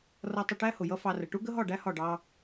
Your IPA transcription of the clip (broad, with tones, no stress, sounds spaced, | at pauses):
r ʌ˧ tˤ ɪ˧ ʈ æ˦ h ʊ˨ j ʌ˦ f ɑ˧ r ə˨ ʈ u˦ ɡ ə˦ ɦ ɒ˦˨ ɖ æ˦ h ɒ˦˨ ɖ ɑ˦